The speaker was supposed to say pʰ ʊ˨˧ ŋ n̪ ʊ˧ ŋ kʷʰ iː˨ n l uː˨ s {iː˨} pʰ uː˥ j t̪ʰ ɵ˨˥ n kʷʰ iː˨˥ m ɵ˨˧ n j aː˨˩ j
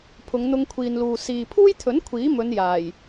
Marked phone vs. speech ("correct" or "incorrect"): correct